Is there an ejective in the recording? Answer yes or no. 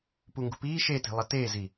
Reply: no